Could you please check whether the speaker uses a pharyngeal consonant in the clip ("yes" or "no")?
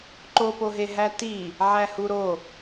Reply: yes